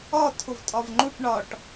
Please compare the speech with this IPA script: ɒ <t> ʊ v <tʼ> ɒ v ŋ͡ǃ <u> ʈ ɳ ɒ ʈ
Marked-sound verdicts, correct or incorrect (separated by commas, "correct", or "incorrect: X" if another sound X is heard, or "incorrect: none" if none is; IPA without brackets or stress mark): incorrect: tʰ, correct, correct